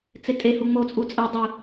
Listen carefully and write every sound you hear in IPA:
t͡s e tʼ e h u ŋ͡m o t͡sʼ u t͡sʼ ɛ dˤ ɯ

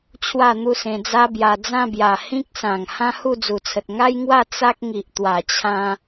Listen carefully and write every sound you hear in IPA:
t͡ɕʰ w a˥˧ n̪ u˥˧ s ẽ˧ d͡z a˦ b j a˧ d͡z ã˥˧ b j a˨˩ h ĩ˦ k̚ s ã˨˩ ŋ h ã˦ h u˥˧ d͡z u˨˩ t͡sʰ ə˨ t̚ ŋ a˦ j ŋ w a˥˧ t͡s a˦ k̚ ŋ i˨ ʔ t̪ w a˨˩ t͡ɕʰ ã˧

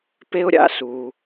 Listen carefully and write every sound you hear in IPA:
p e˥ ʊ̯ ɾʲ a̰˥ s uː˩

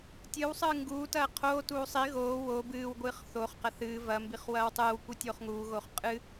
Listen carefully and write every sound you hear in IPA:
tʲ ɨ w sˤ ɨː ŋ ɡ uː t ɐː qʰ oː t uː sˤ i ɣ oː w o b ɨː w ɡʷ ɨː χ θ oː χ q ɐ θ ɨː v ɐ m b i χ w ɐː w tˤ ɨː w kʷ i tʲ oː χ ŋ uː ɣ oː χ qʼ ɨ

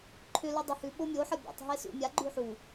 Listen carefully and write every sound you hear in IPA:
ǃʰ ʏ l u dˤ ʏ h ʉ ɓ o mʲ o ħ ə bʲ æ̰ tˤ ɦ e s ṵ mʲ a ɡ͡ǃ ʉ ħ u

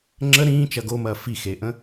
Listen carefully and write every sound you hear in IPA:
ŋ͡ǁ ə ɾ ĩː t͡ʃ ɐ ɡ o m ɐː f i x e ʔ ə̃

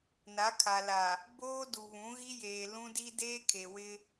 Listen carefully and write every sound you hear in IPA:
n a˨˦ kʰ a˨ l a˨ | b oː˦ d u˨ β ũ˨˦ ɣ i˦ j eː˨ l ũ˦ d i˦ d eː˦ kʰ e˨ w ɪ˦

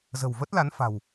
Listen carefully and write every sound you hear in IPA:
z ə̤˨˩ w v ə˦˥ t̚ l a˨˦ n f a̤˨˩ w

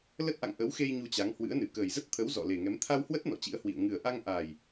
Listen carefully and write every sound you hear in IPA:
l ə˦˥ t̚ ʔ a̰˧˨ ŋ ʔ ə˨˦ w x e˧ j ɲ u˧ t͡ɕ a˨˦ ŋ h w ɨ̰˧˥ ə̯ n ɨ˧˩ k əː˨˩ j z ə˦˥ t̚ t̪ʰ ə˨˦ w z ɔ̰˧˨ l e˨˩ ŋ ɛ˨˦ m t̪ʰ a˧ w h w ə˦˥ t̚ n ɔ̰˧˨ t͡ɕ ḭ˧˥ ə̯ h w ḭ˧˨ ə̯ ŋ ɨ˨˩ ə̯ ʔ a˧ ŋ ʔ aː˨˩ j

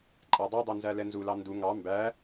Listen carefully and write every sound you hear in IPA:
ǃʼ æ dˤ i dˤ i n z æ l ɛ n z u l ɑ n d u ŋ ɑ m b æ

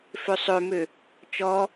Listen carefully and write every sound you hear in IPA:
f ø sˤ ø m ø | t͡ʃ ɔ

